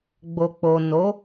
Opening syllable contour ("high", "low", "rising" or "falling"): low